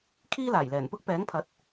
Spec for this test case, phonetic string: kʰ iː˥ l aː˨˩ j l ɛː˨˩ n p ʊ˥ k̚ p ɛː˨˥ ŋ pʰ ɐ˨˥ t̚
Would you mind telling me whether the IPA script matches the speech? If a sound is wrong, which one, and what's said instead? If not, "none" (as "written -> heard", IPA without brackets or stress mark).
none